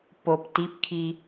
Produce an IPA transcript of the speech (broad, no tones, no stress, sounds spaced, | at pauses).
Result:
p o p t i p kʰ i